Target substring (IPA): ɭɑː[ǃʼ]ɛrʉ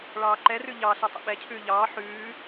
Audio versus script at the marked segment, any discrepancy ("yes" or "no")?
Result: yes